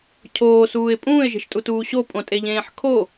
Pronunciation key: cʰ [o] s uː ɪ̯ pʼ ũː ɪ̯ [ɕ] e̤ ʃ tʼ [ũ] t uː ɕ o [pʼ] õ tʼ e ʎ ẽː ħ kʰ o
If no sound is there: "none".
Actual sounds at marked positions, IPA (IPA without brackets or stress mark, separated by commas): oː, ʒ, u, pʼ